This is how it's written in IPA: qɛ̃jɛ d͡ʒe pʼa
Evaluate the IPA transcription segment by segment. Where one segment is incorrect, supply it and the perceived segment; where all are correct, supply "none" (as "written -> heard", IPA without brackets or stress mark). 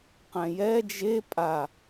none